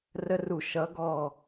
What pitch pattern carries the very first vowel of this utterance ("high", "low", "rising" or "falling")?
high